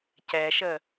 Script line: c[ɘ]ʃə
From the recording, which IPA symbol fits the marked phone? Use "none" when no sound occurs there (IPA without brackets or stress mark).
ɛ